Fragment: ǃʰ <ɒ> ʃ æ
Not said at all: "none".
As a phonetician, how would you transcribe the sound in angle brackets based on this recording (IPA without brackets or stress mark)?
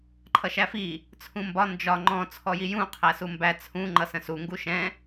ʌ